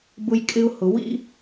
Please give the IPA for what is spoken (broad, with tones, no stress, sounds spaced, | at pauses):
b ʊ˦ j kʼ ɪ˦ ʊ̯ h ʊ˧ w ḭ˦